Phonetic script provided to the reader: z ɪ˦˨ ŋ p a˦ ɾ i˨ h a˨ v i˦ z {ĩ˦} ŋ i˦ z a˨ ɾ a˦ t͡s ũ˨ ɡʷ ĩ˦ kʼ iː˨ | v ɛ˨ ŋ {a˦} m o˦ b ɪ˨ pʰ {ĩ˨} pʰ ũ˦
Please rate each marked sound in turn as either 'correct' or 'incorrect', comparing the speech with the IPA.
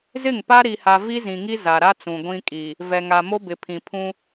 incorrect: ĩ˨, incorrect: a˨, correct

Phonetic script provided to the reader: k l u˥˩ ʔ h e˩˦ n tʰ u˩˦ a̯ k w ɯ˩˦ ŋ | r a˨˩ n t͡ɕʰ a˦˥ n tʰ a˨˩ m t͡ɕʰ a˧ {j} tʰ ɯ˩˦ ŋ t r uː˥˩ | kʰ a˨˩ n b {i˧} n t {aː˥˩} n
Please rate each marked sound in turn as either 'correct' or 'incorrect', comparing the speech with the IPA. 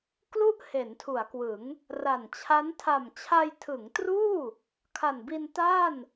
correct, correct, correct

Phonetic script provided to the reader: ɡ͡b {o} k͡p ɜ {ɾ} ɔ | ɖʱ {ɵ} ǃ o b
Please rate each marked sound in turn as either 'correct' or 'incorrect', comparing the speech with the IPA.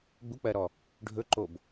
incorrect: u, correct, correct

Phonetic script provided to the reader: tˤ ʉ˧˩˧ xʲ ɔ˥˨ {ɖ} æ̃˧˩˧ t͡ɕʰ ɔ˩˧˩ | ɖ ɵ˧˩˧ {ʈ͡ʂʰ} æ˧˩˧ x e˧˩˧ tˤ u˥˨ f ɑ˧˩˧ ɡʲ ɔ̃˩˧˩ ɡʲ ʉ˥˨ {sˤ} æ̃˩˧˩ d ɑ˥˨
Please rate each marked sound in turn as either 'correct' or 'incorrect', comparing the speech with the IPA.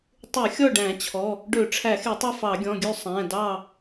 correct, correct, correct

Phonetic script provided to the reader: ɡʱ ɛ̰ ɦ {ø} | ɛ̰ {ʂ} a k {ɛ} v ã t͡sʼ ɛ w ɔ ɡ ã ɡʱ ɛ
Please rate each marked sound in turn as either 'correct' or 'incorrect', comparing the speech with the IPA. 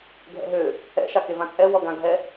correct, incorrect: ʃ, incorrect: e

